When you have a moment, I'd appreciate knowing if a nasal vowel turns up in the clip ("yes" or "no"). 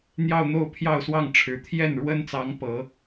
no